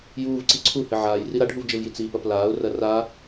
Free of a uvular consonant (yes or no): yes